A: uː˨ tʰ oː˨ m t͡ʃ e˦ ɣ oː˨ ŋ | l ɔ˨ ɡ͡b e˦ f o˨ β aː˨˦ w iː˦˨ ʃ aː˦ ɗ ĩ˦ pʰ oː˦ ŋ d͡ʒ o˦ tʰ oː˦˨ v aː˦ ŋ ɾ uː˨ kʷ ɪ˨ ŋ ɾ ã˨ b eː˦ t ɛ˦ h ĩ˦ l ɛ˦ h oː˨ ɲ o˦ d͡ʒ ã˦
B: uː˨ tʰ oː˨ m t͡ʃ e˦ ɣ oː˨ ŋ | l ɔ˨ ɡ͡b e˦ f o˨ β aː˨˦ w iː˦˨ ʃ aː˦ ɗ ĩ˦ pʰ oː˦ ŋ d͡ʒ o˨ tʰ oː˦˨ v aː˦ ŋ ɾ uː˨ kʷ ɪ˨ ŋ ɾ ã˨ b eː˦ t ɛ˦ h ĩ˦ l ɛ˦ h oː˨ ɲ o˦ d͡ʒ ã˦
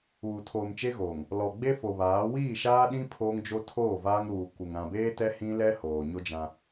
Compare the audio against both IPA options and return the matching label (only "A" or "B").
A